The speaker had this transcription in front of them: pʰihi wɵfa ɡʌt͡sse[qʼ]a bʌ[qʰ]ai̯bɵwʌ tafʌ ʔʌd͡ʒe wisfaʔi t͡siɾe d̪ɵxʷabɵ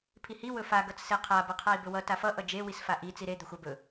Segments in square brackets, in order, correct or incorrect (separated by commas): incorrect, correct